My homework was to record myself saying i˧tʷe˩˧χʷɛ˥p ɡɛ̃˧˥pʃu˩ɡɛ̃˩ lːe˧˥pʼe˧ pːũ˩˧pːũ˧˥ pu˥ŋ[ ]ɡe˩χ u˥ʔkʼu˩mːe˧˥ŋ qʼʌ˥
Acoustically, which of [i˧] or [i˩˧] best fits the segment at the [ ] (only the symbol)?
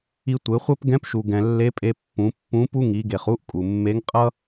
i˩˧